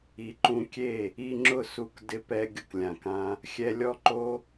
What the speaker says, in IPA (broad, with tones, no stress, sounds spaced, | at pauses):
i˧ ǃ ũ˧ kʲ e˦˨ | i˧ ŋ͡ǁ ʊ˦˨ s u˧ k d ɪ˧ p ɛ˧ ɡʲ ʊ˧ k lʲ ã˨ k ã˧ | xʲ ɛ˧ lʲ ɔ˦ ǃ o˦